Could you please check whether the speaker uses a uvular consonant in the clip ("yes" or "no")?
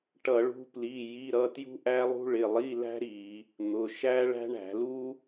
no